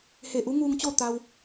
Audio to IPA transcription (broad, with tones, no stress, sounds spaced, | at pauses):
h e˧˩ ʔ u˧˥ ŋ uː˧ ŋ t͡ɕ o˥˨ t̪ a˧ w